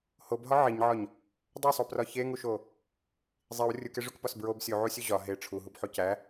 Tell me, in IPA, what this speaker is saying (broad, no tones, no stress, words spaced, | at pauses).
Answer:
hobɦɒ ʕiɲʕɒɲ | dˤosˤoprɒ çeŋuʃo | zˤiw rʲukeʐukpɒs bɹob sʲuʕusʲu ʑɒ ɦe ʈ͡ʂʰuɦubħo cæ